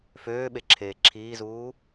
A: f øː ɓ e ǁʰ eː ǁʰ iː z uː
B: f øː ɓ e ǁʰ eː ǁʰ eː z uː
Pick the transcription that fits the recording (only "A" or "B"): A